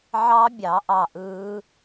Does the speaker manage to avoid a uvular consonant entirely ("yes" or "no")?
yes